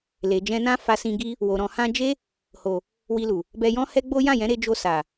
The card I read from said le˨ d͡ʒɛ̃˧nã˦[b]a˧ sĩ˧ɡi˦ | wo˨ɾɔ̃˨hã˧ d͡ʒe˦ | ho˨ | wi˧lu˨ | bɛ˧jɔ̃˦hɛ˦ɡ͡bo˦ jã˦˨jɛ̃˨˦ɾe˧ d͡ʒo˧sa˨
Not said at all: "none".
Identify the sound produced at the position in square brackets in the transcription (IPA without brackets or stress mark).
f